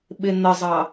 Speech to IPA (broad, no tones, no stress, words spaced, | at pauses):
ɓɪn̪əzˤɑ